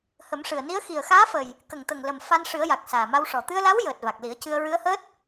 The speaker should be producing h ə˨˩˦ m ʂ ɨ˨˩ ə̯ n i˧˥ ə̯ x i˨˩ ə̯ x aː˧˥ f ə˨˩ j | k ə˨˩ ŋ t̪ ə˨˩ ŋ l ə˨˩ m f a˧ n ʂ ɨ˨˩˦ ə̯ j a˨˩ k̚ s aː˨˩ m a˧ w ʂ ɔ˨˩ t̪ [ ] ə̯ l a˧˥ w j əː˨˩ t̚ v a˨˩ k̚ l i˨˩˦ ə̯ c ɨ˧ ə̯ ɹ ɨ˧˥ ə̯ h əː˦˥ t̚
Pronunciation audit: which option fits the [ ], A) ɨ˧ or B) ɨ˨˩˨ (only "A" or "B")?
A